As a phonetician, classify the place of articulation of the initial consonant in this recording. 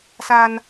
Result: alveolar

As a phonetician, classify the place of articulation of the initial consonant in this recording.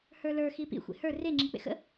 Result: glottal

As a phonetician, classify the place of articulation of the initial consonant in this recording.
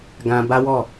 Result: velar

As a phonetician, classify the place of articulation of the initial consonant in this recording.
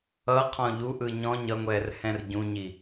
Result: uvular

